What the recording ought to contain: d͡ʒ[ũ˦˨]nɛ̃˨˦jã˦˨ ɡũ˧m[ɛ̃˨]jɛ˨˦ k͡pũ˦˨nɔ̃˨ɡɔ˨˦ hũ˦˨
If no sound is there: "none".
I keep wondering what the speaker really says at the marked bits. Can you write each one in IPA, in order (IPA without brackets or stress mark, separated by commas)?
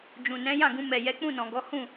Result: ũ˨, ɛ˨